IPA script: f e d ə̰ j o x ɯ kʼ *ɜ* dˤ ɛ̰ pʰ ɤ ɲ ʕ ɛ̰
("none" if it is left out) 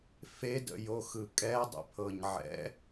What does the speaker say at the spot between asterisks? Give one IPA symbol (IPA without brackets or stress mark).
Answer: ɛ